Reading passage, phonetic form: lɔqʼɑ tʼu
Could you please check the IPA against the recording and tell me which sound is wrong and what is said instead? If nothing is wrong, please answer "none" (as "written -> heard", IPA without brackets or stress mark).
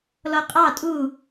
none